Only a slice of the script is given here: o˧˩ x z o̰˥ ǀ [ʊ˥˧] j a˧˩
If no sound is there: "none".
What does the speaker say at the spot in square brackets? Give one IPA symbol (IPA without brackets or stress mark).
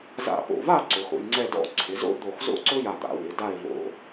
ʊ˥